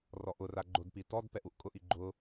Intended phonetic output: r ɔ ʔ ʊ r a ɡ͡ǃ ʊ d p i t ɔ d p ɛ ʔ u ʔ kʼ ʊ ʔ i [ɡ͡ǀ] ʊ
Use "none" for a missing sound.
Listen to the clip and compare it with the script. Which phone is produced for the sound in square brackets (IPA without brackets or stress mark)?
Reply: ɡ͡ǃ